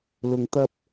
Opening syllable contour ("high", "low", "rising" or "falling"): low